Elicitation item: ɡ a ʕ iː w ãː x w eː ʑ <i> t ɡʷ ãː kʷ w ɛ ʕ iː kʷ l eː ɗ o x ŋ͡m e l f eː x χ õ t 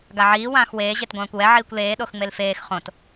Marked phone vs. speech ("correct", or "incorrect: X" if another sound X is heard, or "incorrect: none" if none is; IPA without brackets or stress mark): incorrect: e